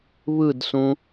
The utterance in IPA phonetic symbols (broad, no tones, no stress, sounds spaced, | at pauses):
β ɯ d s ũ